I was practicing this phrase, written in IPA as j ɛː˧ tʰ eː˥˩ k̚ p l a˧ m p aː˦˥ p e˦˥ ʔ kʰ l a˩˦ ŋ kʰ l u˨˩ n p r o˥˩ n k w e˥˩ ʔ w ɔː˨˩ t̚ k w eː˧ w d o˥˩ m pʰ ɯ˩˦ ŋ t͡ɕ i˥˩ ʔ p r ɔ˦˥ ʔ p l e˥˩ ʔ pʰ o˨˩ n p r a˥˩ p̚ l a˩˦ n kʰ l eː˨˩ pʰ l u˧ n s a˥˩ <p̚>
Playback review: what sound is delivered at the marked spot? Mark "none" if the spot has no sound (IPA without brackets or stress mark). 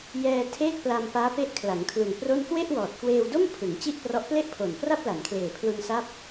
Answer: p̚